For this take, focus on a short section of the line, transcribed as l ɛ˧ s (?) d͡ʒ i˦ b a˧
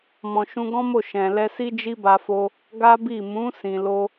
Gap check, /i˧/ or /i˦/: i˦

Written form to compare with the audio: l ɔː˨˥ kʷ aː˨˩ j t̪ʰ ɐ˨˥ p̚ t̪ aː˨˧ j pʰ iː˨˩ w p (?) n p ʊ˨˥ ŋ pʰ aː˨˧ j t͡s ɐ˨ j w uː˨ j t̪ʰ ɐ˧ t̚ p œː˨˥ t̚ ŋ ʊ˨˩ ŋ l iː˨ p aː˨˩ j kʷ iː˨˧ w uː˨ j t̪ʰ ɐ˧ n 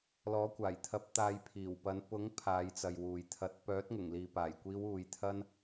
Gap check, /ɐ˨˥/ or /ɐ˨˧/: ɐ˨˧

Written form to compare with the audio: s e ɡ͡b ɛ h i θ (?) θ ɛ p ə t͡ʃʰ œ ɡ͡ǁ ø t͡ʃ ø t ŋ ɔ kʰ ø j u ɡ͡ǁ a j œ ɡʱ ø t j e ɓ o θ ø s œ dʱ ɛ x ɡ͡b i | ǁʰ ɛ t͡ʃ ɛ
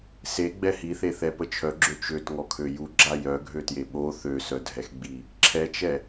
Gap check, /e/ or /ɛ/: e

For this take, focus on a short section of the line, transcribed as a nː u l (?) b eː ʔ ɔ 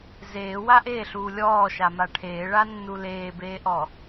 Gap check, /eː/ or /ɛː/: eː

